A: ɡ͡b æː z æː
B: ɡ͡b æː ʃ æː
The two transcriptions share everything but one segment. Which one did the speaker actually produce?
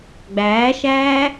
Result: B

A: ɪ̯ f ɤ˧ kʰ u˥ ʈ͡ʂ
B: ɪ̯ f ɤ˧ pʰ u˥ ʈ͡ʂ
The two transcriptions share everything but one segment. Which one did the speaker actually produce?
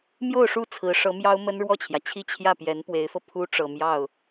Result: B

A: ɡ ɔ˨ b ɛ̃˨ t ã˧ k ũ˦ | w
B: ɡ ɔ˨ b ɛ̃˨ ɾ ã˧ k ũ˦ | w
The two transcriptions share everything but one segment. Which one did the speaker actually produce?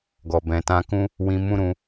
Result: A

